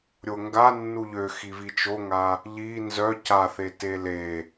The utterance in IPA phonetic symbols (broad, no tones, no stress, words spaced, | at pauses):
ɾʲoŋɡanːu ʎøxivi t͡ʃoŋa | ʎi nzœ ca θetele